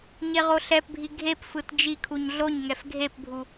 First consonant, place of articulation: palatal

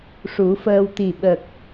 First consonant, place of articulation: retroflex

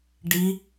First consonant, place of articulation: retroflex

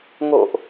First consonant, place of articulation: velar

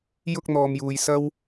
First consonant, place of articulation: palatal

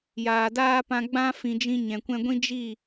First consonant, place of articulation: palatal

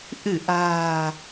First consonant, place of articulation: glottal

